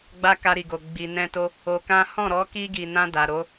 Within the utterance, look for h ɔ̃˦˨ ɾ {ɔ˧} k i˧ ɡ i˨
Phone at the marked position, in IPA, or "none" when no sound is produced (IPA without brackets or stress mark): ɔ˨˦